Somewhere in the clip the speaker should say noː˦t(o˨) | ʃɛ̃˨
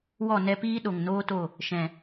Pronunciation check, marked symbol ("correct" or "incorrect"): incorrect